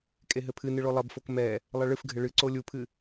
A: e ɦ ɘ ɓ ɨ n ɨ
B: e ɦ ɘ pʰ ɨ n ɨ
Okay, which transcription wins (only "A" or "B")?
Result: B